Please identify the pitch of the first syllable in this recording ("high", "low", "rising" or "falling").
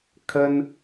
high